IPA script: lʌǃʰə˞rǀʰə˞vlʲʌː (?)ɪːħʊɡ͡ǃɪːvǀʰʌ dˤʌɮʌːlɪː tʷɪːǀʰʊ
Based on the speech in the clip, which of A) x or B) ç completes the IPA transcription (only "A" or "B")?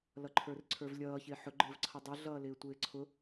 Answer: B